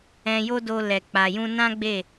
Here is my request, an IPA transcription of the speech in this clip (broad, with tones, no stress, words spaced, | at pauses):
ɛ̃˧jo˦do˧ lɛ˨k͡pa˨jũ˧ nã˦ ɡ͡be˦˨